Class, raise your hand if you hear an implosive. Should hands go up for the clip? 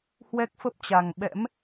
yes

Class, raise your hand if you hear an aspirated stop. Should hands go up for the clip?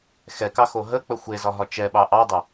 no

